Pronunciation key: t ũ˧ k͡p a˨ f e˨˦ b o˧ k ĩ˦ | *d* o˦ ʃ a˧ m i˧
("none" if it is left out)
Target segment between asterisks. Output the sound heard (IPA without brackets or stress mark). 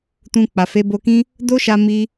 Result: d